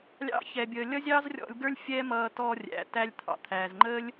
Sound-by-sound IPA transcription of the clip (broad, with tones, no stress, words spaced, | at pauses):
lʲɑ̰˦ çɛ˧bʲəː˧ lʲʌ˦zʲɑː˦zrʲɔ̰˧lʲɡə˞˦lʲ fʲɛ˦ mʌː˧tɔ˧rʲæ̰˨ tæ˧lʲt̪ʰɑ̰˨t̪ʰæː˨z ŋ͡ǃəː˦lʲ